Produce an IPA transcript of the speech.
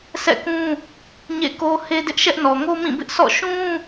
sʰ ɛ̰˦˨ k ũ˦ | ɲ ḛ˦˨ k o˦ h e˦ d ɪ˦ ʔ ʃ ɛ˦ ʔ n ɔ˨ ŋ o˦ m ĩ˦˨ b ɪ˦ ʔ s ɔ̰˦˨ ʃ ũ˦

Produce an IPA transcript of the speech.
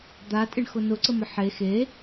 d̪ a tʼ ɪ ɳ x ʊ n ʊ ǀ ə m ə ħ e x e

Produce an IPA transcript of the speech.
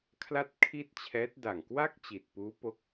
kʰ l a˥˩ t̚ kʰ i˥˩ t̚ t͡ɕʰ ɛː˦˥ t̚ d a˨˩ ŋ k w a˥˩ k̚ t͡ɕ i˨˩ t̚ p uː˦˥ p o˦˥ k̚

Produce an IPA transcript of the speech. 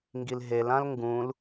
ŋ ɡ i l ɦ e l ã l ŋ ɡ ũ l

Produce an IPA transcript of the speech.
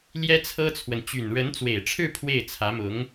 l j ɛ˥ t͡sʰ ɤ˥ t͡sʰ w ə˨ n t͡ɕ y˨˩ n ɻ ə˧˥ n t͡s w e˨˩ ɪ̯ ʈ͡ʂʰ ɻ̩˥˧ pʰ w e˥˩ ɪ̯ t͡sʰ ä˧˥ m ʊ˧˥ ŋ

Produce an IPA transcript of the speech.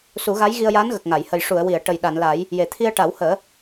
s u˨˩˦ ɣ a˧˥ j ɣ i˧ ə̯ j aː˧˥ n ɣ ə˨˩ k̚ ŋ a˨˩˨ j h ə˨˩ j ʂ u˨˩˨ ə̯ w i˨˩˨ ə̯ ʈ ə˨˩ j ɗ a˨˩˨ n l a˨˩˦ j | j e˨˩ t̪ʰ i˧ ə̯ ʈ a˨˩˦ w h əː˨˩˦

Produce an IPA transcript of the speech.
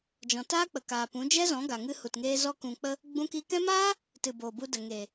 d͡ʒ ɔ̃˧ t aː˦ k͡p ə˨ k aː˨ p ũ˨˦ d͡ʒ ɛ˦ z ɔ̃˨˦ ɡ a˨ ŋ ɨ˧ h u˨ t ŋ eː˧ z ɔ˦ k ũ˧ k͡p ə˦ | ɡ͡b ũ˧ k i˧ k ɛ̃˦ m aː˦ | t ɨ˨ b oː˨ b u˧ d ə˨ ŋ eː˨

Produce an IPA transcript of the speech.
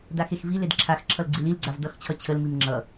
d a x e x v i l e d ǁʰ a x ǁʰ ʌ l ɡ͡ǀ i l i l ɡ͡ǀ a v d ʌ x t͡ɕʰ ʌ t͡ɕʰ ə l m i m ŋ͡ǁ ʌ

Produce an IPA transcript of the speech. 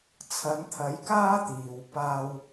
t͡sʰ ɐ˨˥ n t̪ʰ ɐ˨˥ j k aː˥ t̪ iː˨ w p aː˧ w

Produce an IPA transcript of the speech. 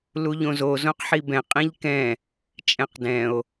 l u ʎ õ z o z õ q ħ i b ɛ̃ qʼ ĩ ʎ k ɛ̃ | t͡ʃʼ ɛ̃ q d ɛ̃ o̯

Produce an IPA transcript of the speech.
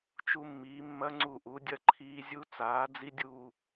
t͡ʃ u˧ mː iː˩˧ mː ɐ˧ ŋ͡ǀ u˧˩ ʔ u˩˧ dʲ ɐ˧ ǃʰ iː˧ zʲ u˧ t͡s aː˩˧ d͡z i˧ dʲ uː˧˩

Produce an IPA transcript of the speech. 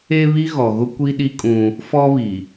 e˦ β i˦ ɣ ɔ˨ ɣ ʊ˦ kʷ i˦ ɗ i˦ kʼ ũ˦ | f ɔ˦ β i˨

